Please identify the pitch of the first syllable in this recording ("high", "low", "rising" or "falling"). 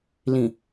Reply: low